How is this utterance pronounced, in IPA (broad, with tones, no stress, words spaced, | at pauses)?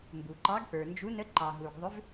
mbu˩ǃɑ˨˥ɡpə˞˩nd͡ʒu˨˥ nə˨˥ǃɑ˩ɦu˩ɡ ðˤʏ˨˥v